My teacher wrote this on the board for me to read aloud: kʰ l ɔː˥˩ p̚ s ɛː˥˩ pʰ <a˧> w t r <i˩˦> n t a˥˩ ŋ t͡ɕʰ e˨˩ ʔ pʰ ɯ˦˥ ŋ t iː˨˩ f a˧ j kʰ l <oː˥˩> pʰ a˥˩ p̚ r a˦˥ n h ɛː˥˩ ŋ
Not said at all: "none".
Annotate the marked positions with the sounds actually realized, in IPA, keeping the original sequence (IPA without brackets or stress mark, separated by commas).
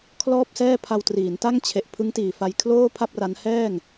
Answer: a˧, iː˩˦, oː˥˩